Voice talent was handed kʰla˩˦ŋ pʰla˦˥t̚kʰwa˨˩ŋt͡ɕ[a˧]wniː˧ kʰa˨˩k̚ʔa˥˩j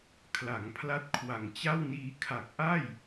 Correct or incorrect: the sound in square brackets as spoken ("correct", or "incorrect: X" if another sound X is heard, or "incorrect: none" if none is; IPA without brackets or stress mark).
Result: incorrect: a˥˩